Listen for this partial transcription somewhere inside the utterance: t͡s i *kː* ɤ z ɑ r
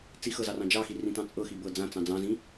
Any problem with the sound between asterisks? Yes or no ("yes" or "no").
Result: yes